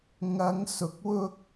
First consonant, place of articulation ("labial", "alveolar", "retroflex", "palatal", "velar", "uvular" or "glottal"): velar